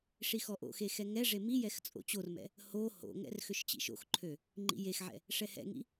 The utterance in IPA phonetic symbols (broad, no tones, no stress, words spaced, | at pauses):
ʂixɔʔo̰xe xɛŋɛʐe mijɛx t͡sʼo̰t͡ɕormɛ̰ | ho ho̰ŋɛ̰r xøʃt͡ɕḭʃo̰xǃʰø | ŋ͡ǃḭjexʕɛ̰ | ʂɛhɛ̰ŋḭ